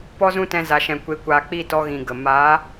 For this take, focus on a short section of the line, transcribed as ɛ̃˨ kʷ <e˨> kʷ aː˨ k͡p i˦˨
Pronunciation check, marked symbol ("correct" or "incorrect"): correct